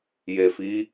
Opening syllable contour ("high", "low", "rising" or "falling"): low